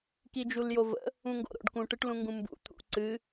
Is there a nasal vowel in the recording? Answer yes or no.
yes